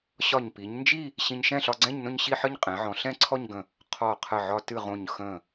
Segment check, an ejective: present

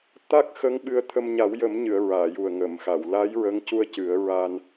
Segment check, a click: absent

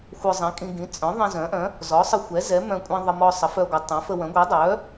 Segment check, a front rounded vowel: present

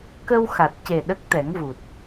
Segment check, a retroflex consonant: absent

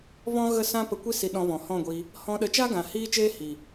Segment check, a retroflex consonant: absent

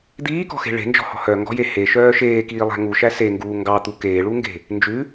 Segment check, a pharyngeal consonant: absent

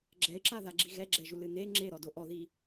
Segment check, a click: present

